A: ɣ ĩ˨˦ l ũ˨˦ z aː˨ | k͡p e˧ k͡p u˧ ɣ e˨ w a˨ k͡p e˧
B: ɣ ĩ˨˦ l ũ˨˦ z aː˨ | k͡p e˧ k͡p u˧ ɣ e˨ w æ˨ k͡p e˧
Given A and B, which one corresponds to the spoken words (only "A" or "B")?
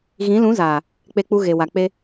A